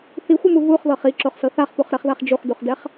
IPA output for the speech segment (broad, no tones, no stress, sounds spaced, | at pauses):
θ i xʷ ɯ m u v u χ ð ɤ χ i ǁ o χ s ɤ θ a χ p u χ ɾ ɛ χ ð a χ d͡ʒ u χ d u χ d ɛ χ